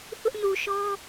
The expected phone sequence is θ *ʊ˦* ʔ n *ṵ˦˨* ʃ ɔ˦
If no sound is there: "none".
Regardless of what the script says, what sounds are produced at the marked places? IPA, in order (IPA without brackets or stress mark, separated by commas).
ʊ˦, u˨